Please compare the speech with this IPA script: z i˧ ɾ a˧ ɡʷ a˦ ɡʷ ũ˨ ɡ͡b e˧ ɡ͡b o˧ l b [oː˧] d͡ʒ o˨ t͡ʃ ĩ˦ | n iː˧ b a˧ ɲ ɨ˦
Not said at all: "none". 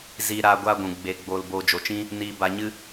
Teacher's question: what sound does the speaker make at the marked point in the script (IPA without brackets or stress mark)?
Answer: oː˧